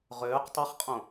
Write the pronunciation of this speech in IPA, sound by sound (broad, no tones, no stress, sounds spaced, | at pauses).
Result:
ʁ øː q tˤ e χ qʼ õ